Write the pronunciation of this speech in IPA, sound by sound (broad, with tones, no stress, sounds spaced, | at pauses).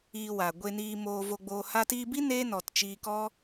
iː˧ w a˨ ɡʷ e˧ n iː˧ m oː˧ v o˧ ɡ͡b oː˧ h a˧ t iː˧ b i˦ n eː˦ n ɔ˨ t t͡ʃ iː˧ k ɔ˦